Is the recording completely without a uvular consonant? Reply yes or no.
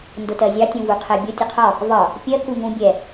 no